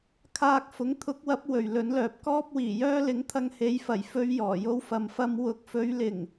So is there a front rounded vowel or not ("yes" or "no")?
yes